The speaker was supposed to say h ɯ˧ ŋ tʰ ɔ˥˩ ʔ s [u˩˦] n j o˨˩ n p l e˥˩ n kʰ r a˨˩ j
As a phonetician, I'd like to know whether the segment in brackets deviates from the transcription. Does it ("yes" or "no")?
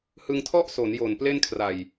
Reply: yes